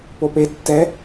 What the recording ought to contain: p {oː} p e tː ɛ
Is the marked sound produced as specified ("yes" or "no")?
no